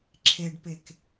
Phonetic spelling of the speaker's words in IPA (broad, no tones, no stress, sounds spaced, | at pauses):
ǁʰ e ɖ p e k